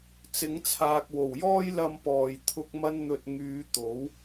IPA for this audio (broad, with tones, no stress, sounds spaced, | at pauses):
t͡s ɪ˨˥ ŋ t͡sʰ aː˨ k̚ w o˨˩ w j ɔː˥ j l ɐ˧ m p ɔː˨ j t̪ʰ ʊ˧ k̚ m ɐ˥ n n̪ ɵ˧ t̚ ŋ yː˨˧ t̪ o˨˥ w